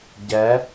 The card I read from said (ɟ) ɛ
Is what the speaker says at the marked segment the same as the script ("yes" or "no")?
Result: yes